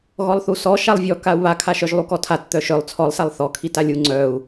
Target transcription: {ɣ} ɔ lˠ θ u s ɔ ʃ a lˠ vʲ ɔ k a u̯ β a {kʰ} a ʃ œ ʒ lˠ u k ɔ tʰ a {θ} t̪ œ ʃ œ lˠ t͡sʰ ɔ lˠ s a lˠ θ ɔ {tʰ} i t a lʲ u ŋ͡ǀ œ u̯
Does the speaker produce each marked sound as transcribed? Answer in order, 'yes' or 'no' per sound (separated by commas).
yes, yes, no, no